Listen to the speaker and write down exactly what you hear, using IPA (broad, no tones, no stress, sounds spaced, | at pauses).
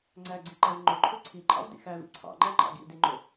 ŋ͡ǀ æ ɡ͡ǀ i ǃ æ v ŋ͡ǃ ɵ ǃʰ ɵ ǀʰ i ǃʼ ɑ̰ v d ḭ x æ v ḭ ǀʰ ɑ̰ ŋ͡ǃ æ ŋ͡ǃ ɑ̰ ɡ ḭ d i ŋ͡ǃ ɵ